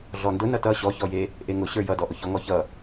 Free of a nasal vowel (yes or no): yes